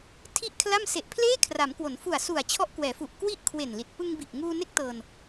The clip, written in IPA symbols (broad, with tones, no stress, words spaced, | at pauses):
tʰi˥˩ʔkʰla˥˩m se˨˩ʔpʰleː˥˩kʰra˩˦mkwo˩˦n fu˨˩a̯su˨˩a̯t͡ɕʰɔ˦˥ʔ kwɛː˩˦fu˨˩ʔ kwi˦˥ʔ kʰwe˨˩nli˨˩t̚ pɯ˧ŋbi˨˩ʔŋuː˧ne˦˥k̚ tɤː˧n